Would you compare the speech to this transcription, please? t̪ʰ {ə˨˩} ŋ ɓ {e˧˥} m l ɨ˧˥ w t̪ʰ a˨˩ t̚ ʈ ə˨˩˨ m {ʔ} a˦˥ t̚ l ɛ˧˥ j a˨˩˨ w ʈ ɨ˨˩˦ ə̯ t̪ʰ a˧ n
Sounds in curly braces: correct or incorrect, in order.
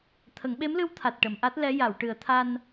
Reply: incorrect: ə˨˩˦, correct, correct

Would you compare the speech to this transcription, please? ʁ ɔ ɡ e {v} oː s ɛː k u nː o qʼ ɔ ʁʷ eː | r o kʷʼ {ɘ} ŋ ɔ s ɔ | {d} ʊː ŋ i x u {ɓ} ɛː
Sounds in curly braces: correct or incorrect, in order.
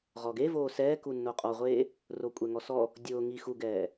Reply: correct, incorrect: ɛ, incorrect: dʲ, incorrect: ɡ

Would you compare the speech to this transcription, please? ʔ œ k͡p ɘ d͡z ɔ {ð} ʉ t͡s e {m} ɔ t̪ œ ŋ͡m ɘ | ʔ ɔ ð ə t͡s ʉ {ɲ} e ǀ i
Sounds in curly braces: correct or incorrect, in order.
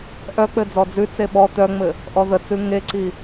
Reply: incorrect: d͡z, incorrect: ɓ, incorrect: ŋ

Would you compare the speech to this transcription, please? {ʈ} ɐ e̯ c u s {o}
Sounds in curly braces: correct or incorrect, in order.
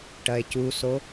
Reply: correct, correct

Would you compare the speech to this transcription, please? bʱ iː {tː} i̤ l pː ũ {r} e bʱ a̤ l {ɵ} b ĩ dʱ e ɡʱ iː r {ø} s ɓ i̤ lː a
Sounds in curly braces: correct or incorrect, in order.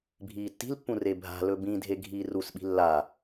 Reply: correct, correct, correct, incorrect: u

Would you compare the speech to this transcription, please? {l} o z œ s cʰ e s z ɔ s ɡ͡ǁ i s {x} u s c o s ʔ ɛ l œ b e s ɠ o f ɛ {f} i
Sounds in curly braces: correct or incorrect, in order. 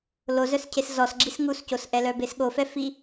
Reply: correct, incorrect: ŋ, correct

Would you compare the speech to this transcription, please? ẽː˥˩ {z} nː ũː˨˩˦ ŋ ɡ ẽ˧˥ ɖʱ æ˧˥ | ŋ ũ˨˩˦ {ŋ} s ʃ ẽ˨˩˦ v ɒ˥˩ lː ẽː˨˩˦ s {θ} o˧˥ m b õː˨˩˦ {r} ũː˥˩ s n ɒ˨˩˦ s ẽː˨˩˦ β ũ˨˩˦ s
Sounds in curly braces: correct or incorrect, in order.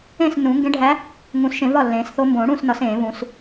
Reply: incorrect: s, incorrect: none, correct, incorrect: ɽ

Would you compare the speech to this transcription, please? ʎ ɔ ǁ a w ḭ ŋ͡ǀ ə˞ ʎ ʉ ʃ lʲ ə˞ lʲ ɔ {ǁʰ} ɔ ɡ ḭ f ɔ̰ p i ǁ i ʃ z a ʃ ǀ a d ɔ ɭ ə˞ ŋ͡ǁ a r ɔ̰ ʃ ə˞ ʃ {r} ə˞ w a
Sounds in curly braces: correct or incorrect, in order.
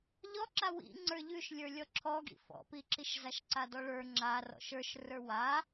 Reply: correct, correct

